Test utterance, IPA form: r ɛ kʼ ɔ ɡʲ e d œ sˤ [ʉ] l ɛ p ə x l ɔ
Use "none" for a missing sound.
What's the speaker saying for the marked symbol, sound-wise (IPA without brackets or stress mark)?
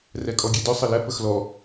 ə